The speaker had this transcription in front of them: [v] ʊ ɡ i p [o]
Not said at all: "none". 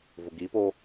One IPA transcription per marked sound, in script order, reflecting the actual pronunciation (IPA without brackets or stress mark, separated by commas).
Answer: v, o